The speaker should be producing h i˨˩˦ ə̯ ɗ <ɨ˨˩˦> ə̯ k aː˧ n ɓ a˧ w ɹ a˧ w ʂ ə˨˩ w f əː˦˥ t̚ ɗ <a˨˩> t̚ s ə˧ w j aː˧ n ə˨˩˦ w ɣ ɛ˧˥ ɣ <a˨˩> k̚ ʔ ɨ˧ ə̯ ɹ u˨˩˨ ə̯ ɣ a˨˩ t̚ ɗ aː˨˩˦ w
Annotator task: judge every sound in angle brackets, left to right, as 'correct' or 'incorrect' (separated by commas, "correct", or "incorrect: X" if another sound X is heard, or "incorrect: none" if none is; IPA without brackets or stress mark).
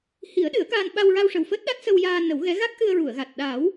correct, incorrect: a˦˥, incorrect: a˦˥